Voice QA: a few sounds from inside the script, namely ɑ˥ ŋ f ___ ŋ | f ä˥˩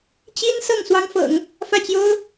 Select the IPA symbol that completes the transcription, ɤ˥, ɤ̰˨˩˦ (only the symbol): ɤ̰˨˩˦